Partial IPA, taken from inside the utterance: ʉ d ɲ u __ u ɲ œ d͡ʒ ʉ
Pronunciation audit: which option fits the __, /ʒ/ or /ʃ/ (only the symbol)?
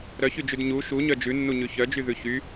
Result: ʃ